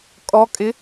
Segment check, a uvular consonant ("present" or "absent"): absent